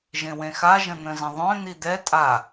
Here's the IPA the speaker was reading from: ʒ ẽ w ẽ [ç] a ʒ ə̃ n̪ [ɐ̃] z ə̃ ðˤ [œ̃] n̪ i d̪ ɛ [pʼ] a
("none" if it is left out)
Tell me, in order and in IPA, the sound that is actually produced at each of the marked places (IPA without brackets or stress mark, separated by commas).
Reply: x, ə̃, œ̃, tʼ